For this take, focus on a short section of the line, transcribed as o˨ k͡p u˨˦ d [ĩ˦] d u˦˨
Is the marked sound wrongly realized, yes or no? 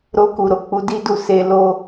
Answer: yes